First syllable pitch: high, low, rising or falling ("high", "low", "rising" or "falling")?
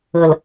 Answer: low